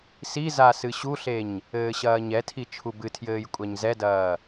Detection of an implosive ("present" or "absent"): absent